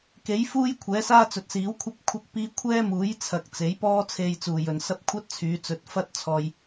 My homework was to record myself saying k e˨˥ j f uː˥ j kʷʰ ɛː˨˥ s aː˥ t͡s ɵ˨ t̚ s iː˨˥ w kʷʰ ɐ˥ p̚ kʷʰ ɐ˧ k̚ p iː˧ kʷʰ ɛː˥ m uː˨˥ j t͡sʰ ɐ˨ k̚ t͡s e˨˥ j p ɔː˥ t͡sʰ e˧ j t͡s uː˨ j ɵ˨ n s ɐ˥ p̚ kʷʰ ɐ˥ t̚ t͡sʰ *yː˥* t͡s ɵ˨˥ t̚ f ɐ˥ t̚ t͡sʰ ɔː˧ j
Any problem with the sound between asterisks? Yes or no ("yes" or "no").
yes